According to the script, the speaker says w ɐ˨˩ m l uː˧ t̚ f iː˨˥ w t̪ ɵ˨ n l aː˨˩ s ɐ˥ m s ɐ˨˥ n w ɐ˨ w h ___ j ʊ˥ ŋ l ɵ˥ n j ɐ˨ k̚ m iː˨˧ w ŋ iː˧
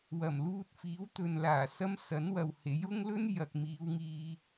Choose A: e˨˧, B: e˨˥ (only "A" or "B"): B